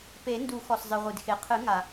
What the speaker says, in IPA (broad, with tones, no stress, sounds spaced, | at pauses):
p e˨˩˦ n d u˨˩˦ x ɔ˩ s zˤ ɨ˩ ʁʷ ɨ˩ d x e˩ qʰ ɨ˨˩˦ ŋ a˩